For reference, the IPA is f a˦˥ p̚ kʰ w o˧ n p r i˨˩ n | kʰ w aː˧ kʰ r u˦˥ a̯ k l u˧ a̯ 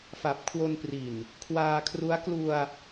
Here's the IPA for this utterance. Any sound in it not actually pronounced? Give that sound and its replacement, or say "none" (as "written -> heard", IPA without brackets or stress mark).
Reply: a˦˥ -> a˨˩